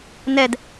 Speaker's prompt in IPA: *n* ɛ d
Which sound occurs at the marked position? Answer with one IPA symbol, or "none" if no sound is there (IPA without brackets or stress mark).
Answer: n